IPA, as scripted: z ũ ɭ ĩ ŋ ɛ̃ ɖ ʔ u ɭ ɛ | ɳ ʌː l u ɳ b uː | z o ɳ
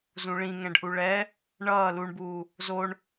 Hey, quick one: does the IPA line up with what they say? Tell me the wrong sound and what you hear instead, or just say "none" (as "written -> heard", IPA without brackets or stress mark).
none